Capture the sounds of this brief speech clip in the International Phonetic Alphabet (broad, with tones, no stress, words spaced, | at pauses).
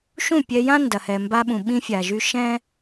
ʃũ˦˨pʲɛ˧jã˦ ndɐ˨hɛ˨mba˧ɓũ˨ ɓĩ˧fʲa˨ʒy˧ ʃɛ̃˦